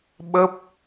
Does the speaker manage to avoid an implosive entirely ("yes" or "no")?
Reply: no